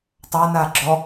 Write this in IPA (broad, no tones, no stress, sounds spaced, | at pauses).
tˤ a n a ɡ͡ǁ ɔ